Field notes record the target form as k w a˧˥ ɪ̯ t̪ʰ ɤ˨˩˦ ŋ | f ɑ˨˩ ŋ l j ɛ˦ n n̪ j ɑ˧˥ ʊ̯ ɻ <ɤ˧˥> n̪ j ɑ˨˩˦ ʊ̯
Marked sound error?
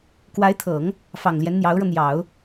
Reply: yes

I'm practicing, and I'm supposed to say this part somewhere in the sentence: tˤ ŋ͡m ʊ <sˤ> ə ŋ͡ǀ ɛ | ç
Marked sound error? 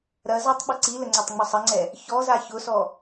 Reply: no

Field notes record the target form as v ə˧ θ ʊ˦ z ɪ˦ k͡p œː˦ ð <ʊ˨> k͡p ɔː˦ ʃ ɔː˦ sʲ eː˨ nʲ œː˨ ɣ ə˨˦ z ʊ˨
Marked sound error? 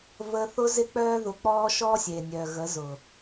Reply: yes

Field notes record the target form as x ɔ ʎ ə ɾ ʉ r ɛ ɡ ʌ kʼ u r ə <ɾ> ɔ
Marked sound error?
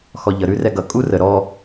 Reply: no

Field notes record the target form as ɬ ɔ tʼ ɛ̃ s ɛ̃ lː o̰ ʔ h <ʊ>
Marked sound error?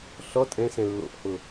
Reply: no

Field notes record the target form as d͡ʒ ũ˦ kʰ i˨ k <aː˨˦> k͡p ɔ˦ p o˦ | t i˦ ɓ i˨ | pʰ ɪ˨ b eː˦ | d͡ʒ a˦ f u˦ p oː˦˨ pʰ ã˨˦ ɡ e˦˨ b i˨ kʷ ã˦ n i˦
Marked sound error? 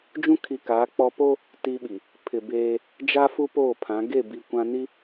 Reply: no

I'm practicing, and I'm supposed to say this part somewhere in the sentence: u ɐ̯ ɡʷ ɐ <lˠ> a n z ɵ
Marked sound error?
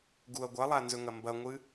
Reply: no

